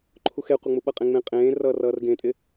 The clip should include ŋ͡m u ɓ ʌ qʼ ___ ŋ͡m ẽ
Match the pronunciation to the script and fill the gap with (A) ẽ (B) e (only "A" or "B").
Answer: A